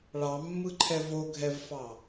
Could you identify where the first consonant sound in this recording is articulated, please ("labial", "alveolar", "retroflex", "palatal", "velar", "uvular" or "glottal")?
retroflex